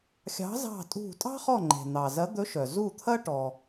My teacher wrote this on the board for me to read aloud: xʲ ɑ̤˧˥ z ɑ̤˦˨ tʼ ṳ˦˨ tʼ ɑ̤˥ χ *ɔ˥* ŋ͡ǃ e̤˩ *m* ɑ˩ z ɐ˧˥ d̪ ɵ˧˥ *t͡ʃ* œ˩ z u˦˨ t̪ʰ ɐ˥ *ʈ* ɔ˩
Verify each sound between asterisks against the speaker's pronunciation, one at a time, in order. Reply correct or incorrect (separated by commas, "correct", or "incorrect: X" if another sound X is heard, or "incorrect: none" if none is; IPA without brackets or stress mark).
incorrect: ɔ˦˨, incorrect: n̪, incorrect: ʃ, correct